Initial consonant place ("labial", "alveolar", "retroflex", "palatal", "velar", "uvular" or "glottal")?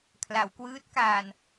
velar